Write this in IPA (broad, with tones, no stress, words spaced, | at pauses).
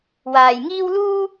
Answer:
waː˨jŋiː˥w luː˥